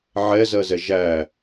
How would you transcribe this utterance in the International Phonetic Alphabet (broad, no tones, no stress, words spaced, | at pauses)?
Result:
ʕɛzɜzɛ ʒæ